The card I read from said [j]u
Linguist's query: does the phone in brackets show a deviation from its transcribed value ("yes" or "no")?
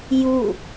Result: no